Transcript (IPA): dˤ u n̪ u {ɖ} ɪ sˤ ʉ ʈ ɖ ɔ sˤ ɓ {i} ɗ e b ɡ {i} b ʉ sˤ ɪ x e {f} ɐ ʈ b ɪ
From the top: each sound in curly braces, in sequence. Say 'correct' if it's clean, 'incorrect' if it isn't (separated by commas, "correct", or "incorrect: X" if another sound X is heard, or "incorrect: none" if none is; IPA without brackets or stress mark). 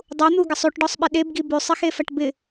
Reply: incorrect: ɡ, incorrect: ɪ, correct, correct